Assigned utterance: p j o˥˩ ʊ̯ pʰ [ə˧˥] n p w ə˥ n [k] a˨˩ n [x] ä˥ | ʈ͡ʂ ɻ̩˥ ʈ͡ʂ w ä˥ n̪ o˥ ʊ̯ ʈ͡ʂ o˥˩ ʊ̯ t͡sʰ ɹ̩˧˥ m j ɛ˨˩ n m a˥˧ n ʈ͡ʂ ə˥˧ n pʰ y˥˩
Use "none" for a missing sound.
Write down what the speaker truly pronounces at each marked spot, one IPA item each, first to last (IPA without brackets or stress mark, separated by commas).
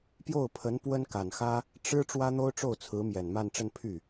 ə˧˥, k, x